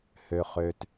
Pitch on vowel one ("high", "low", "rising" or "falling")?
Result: low